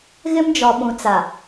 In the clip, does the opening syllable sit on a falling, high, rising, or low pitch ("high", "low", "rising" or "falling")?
high